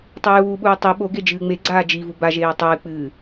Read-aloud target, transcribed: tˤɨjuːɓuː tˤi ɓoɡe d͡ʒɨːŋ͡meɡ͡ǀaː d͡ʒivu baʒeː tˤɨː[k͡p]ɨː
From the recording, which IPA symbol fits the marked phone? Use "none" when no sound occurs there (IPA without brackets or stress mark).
k͡p